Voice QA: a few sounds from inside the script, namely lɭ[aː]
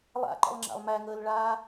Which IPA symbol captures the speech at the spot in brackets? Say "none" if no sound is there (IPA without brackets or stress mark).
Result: aː